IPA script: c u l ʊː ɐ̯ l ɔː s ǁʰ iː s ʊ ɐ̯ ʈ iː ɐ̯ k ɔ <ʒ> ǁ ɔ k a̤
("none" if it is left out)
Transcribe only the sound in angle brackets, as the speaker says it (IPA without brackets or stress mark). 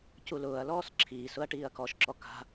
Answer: ʃ